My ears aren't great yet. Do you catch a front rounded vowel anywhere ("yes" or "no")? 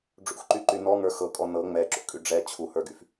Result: yes